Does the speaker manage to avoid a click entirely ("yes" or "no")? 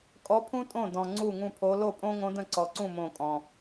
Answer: no